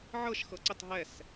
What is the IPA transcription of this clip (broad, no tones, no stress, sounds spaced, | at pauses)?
ʕ ɤ ʃ x ɤ ǀ ə tˤ ɦ ɛ s